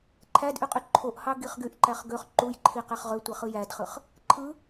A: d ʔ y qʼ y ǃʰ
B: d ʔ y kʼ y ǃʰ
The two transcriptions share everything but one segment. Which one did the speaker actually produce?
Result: A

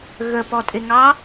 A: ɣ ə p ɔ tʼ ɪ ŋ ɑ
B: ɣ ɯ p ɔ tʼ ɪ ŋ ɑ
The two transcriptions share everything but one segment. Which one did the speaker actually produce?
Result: A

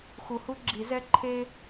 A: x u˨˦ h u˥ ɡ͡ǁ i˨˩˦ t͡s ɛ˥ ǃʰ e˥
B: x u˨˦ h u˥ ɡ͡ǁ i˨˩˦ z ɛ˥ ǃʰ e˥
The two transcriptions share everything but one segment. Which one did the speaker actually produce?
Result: B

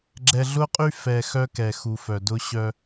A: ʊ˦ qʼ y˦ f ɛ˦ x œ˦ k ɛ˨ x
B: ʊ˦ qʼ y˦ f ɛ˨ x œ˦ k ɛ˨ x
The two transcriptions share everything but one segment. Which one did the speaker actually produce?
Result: B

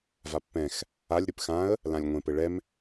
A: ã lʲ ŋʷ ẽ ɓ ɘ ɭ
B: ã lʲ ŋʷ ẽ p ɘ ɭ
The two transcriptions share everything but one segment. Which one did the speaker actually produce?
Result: B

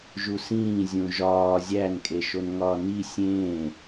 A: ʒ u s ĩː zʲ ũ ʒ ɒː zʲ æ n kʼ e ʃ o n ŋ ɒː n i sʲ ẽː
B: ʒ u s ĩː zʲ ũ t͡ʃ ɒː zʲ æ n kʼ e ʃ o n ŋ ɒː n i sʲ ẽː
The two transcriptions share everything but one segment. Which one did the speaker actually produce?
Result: A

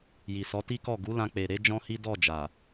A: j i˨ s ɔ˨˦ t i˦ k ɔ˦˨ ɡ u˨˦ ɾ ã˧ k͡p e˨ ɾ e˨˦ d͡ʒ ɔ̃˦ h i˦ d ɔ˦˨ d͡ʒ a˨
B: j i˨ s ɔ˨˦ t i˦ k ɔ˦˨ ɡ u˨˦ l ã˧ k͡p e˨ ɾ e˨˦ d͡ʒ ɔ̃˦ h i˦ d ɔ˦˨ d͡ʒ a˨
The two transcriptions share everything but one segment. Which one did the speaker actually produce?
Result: B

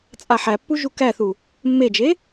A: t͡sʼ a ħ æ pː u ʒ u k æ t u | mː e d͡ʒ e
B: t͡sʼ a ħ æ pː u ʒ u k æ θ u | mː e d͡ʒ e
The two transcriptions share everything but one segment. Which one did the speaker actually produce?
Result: B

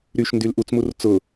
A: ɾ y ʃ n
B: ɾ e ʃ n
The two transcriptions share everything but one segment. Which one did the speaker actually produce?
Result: A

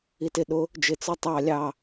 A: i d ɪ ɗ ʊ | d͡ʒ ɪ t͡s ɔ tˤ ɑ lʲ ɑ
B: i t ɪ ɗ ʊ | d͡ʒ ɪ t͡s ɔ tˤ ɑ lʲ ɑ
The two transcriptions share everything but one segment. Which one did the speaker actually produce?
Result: B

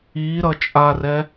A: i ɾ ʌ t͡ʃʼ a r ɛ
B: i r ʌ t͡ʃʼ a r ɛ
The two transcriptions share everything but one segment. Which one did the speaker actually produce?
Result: A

